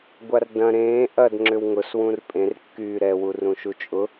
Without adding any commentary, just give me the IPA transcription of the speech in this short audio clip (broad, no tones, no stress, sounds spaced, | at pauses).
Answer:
ɡʷ a r d ɐ̃ ɾ ẽː ʔ ɐ d ŋ͡ǁ ʏ w ŋ ʊ s w ũ r pʼ ẽ r kː yː ɾ ɛ w u r ũ ʃ u t͡ʃʼ ʊ